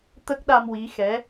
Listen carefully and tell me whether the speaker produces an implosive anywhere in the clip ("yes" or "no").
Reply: yes